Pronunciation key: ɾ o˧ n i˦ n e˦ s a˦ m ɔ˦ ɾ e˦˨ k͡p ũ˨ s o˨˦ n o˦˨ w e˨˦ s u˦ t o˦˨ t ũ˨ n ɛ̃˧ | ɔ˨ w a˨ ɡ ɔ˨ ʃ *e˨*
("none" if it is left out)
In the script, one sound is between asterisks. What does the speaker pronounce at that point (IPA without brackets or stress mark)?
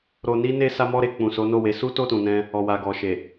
e˨